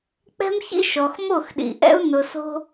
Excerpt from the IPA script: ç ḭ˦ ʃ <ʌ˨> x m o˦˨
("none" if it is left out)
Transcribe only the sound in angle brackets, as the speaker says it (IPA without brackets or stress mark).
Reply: ɔ˨